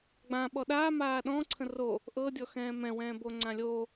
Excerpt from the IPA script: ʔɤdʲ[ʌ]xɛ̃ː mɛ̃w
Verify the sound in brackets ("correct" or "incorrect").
incorrect